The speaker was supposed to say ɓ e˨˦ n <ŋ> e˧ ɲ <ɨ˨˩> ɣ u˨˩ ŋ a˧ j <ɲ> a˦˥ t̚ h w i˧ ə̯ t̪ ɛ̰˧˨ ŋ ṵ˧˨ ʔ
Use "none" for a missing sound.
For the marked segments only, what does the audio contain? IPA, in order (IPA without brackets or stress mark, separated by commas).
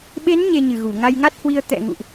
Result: ɲ, ɨ˨˩, ŋ